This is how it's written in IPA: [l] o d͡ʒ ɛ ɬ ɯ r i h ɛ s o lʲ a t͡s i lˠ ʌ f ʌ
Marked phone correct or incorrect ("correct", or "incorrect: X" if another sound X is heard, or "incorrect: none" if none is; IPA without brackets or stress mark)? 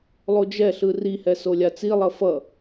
incorrect: lˠ